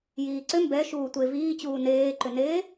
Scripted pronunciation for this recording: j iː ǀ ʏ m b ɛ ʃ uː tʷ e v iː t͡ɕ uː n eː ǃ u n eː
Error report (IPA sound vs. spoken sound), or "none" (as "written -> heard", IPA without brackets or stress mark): u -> ʏ